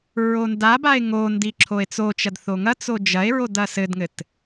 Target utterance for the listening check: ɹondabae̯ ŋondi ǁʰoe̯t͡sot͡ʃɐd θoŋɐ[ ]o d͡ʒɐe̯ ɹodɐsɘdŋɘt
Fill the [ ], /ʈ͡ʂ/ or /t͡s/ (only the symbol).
t͡s